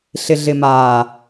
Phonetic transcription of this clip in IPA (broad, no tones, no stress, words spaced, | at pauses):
ɬɪɮɪmaː